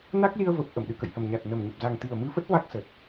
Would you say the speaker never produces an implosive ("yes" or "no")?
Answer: no